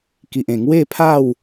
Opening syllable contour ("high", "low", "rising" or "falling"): low